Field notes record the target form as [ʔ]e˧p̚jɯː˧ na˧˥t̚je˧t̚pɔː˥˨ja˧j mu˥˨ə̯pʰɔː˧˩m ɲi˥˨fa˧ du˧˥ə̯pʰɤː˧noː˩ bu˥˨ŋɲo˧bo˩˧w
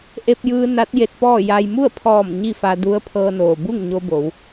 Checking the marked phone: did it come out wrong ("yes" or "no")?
no